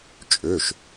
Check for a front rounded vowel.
present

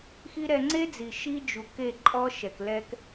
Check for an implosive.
absent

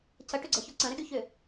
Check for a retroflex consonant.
present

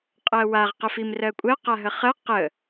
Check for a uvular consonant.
present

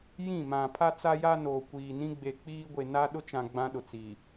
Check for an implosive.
present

